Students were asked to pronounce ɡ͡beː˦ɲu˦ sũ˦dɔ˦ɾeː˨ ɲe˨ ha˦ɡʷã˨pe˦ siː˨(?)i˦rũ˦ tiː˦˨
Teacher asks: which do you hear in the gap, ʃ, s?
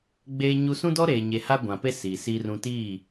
s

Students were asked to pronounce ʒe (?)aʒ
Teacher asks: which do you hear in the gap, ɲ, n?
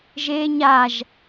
ɲ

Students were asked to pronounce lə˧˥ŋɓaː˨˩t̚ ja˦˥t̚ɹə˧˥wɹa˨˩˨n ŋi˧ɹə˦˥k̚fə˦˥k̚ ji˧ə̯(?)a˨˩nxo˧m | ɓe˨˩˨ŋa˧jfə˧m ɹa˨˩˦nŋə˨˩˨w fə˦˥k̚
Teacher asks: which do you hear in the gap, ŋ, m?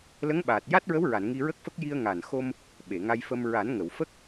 ŋ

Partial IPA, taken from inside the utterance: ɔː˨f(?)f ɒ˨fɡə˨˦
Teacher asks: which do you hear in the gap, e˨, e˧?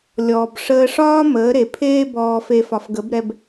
e˨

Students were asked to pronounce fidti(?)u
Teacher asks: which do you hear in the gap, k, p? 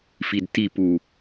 p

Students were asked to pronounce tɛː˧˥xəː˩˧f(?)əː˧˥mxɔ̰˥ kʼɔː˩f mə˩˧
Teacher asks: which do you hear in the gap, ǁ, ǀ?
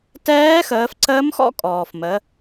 ǀ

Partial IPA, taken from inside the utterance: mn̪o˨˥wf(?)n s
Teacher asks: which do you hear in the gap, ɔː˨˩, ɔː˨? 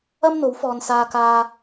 ɔː˨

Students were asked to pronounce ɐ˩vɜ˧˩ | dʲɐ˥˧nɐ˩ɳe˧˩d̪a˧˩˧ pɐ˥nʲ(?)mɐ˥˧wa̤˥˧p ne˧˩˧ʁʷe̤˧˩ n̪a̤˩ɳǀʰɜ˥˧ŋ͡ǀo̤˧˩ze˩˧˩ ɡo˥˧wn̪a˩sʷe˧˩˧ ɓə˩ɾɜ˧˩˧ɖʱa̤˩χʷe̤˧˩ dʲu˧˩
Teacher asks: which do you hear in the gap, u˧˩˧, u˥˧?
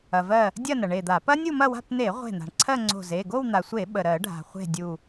u˥˧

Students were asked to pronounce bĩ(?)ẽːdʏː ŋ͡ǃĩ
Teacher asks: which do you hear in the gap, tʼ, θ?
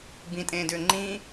tʼ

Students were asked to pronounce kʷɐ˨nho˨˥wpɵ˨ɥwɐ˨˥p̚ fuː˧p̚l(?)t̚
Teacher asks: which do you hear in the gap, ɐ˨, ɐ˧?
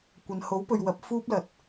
ɐ˨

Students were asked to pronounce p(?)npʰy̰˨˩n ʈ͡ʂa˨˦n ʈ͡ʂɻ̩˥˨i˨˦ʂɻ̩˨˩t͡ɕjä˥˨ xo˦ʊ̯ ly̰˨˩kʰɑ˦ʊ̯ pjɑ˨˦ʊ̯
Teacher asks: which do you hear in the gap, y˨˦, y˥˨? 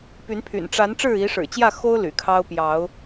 y˨˦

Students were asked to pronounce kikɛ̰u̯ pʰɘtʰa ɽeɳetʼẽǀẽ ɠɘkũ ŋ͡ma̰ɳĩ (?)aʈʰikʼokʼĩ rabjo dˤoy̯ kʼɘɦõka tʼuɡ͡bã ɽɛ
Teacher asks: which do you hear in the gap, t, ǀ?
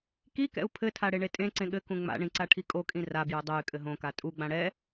ǀ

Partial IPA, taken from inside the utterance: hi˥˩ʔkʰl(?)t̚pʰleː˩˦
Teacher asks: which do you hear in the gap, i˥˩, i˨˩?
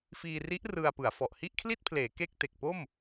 i˥˩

